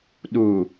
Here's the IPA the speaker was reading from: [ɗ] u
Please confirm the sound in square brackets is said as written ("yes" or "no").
yes